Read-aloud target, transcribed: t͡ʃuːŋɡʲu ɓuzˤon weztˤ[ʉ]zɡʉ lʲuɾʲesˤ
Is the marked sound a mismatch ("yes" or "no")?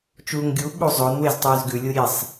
yes